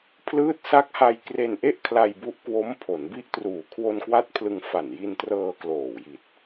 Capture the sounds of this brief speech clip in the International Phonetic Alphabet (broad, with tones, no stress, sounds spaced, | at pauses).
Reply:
pʰ l ɯː˦˥ t̚ s a˦˥ k̚ h a˧ j k r e˧ n ʔ e˥˩ ʔ kʰ l a˧ j b u˦˥ ʔ k w o˦˥ m pʰ o˩˦ n b i˥˩ ʔ t r uː˨˩ kʰ w o˧ n k w a˥˩ t̚ pʰ l ɯ˧ ŋ f a˨˩ n j i˧ n t r ɤː˧ k l oː˨˩ w j i˨˩ t̚